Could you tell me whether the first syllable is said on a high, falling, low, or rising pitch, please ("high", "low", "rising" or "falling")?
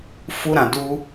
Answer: high